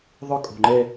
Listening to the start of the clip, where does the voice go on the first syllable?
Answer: falling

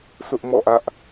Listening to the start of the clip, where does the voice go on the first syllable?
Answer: high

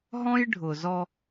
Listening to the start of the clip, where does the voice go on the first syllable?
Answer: high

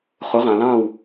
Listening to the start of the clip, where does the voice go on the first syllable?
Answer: rising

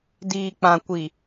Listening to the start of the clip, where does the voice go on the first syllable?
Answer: low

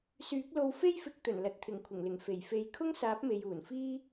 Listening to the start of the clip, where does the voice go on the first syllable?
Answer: rising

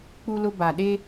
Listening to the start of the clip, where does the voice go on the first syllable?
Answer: high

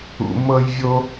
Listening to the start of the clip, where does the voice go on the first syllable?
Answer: low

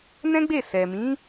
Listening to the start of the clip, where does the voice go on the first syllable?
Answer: high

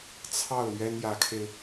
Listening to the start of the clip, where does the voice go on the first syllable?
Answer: falling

